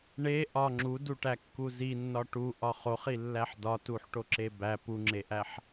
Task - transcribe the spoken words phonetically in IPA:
ɳ e ʔ ɒ ŋ͡ǁ u d u ʈ æ kː u z i nː ɒ ʈ u ʔ ɒ χ o χ i lː æ ħ d ɒ t u ħ ʈ o ǁ e b æ p u ŋ͡ǁ e ʔ æ ħ

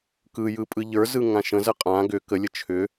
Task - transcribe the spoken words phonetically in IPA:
k ɯ j ɯ pʼ ɯ ʎ ə˞ z ɯ ŋ ã ʃ ə̃ z ə qʼ ã ɡ ʏ k ə lʲ ə t͡ʃʰ ʏ

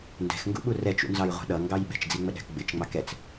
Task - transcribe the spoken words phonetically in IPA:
n d ɛ̤ x ŋ ɡ ṵ ɓ u r ɛ t͡ʃ ṵ n z ɑ j ʁʷ ɛ̤ ɗ ʌ ŋ ɡ ɑ j ɓ ɛ̤ t͡ʃ d͡z i ŋ͡m ə ɗ æ̤ k ɡ͡b ɪ t͡ʃ ŋ͡m ɑ k ɛ t͡s

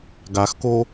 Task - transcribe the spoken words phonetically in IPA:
ɡ a x k o

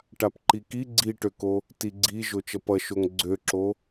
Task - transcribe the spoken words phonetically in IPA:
ʈ a p ǃ i k i ɡ͡ǀ i ʈ ø k o | t i ɡ͡ǀ i ʒ o t͡ʃ ʌ p ʌ ʃ o ŋ ɡ͡ǀ ø ǁ o

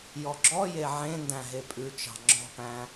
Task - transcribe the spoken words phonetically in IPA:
j ɔ ɡ͡ǁ ɔ j e ʕ ẽ n d æ̃ ɦ e pʼ ʉ t͡ʃ ɑ̤ ŋ͡ǁ ɔ̤ p æ̃

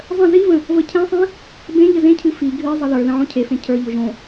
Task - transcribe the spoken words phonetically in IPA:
zˤ ə̃ z i v ə̃ | v ə cʰ ẽ sˤ ĩ | b ẽ ʎ ə z ẽ cʰ ɨ f i ɡʱ ɨ zˤ ə ð ə˞ ð ə̃ ʕ õ cʰ e f ẽ cʰ ə˞ ʎ o ʒ õ

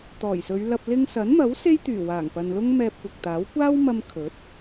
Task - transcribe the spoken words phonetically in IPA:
t̪ ɔː˨˩ j s ɵ˨˧ ɥ l ɐ˧ p̚ l ɪ˧ ŋ s ɐ˨˥ n m ɐ˨˥ w s e˥ j t̪ yː˨˩ w aː˨˩ ŋ p ɐ˨ n l ʊ˥ ŋ m ɛː˧ p̚ kʷ ɐ˨ k̚ t̪ aː˨˥ w kʷ aː˥ w m ɐ˧ m kʰ ɵ˨˥ t̚

